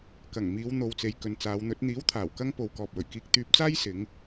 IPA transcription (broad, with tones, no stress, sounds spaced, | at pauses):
k ɐ˨˩ ŋ m iː˨˧ w n̪ o˨ w t͡s e˨ j k ɵ˨ n t͡s aː˨˧ w n̪ ɵ˨˥ t̚ n̪ iː˨˥ w t̪ʰ aː˨˩ w k ɐ˧ ŋ p o˨ w k ɔː˨ p̚ w ɵ˨˩ ɥ k iː˧ k̚ t̪ yː˧ p̚ t͡s aː˥ j s ɪ˨˧ ŋ